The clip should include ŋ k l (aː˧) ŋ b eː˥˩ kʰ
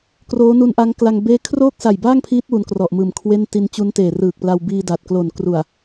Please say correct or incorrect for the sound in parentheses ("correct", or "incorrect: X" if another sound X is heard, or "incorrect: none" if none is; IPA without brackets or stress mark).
incorrect: a˧